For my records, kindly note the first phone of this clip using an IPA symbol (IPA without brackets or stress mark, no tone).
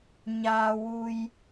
ɲ